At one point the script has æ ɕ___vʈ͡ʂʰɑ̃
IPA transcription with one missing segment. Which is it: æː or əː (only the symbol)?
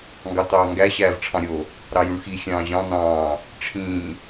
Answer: æː